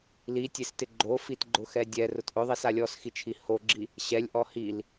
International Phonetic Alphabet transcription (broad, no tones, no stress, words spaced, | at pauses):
litʲestɪ ɡ͡ǃofitɡ͡ǃʊxɛ dʲɛrʊt ʔʊðˤisa lʲɔsxit͡ʃʰi hoɡ͡ǁi | ɕɛlʲʔɔ hil